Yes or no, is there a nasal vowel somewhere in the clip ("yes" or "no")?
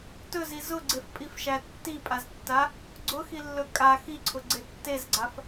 no